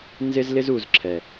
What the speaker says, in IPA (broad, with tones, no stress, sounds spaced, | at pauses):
n z ɪ˦ z l ɪ˦ z u˨ z ǁʰ ɛ˨